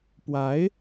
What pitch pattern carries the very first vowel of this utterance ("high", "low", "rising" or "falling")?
rising